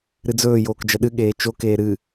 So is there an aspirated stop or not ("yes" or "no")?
no